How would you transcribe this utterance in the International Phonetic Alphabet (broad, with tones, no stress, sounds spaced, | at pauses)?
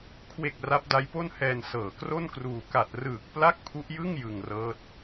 kʰ w e˨˩ k̚ r a˦˥ p̚ d a˦˥ j p o˥˩ n h ɛː˧ n s ɤː˨˩ k r o˥˩ n k r uː˧ k a˨˩ t̚ r ɯː˨˩ k̚ p l a˥˩ k̚ pʰ u˦˥ ʔ j ɯ˥˩ ŋ j ɯ˧ ŋ r ɤː˦˥ t̚